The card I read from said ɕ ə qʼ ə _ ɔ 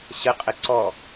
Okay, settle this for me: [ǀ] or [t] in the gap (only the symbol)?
ǀ